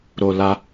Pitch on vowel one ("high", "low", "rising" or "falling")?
low